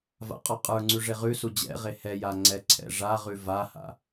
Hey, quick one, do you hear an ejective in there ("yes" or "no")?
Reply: yes